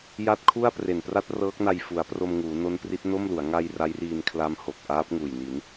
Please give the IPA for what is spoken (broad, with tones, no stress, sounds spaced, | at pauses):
j a˦˥ t̚ kʰ u˥˩ a̯ p r e˨˩ n p r a˥˩ t̚ r ɤː˦˥ k̚ n a˧ j f u˩˦ a̯ p r o˧ m ŋ uː˩˦ n o˦˥ n p r i˦˥ t̚ n o˥˩ m l u˩˦ a̯ ŋ a˧ j r a˦˥ j r iː˧ n kʰ l a˦˥ m h o˨˩ k̚ ʔ aː˦˥ p̚ ŋ uː˨˩ j n i˩˦ n